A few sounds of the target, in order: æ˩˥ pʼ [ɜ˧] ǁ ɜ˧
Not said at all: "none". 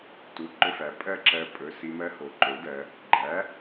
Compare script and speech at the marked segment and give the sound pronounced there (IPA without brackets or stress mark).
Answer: ɜ˥˧